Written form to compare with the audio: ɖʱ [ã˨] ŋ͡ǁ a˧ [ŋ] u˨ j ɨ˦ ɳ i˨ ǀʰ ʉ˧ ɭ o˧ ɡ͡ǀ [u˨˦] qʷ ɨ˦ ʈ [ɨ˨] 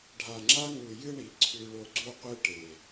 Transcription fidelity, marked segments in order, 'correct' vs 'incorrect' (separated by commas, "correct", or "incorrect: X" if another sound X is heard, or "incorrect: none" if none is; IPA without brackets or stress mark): incorrect: a˨, correct, incorrect: u˦, incorrect: e˨